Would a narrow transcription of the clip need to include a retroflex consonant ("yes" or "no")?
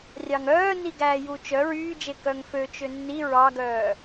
no